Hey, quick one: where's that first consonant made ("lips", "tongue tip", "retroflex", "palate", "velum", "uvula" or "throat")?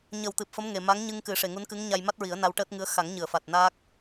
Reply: palate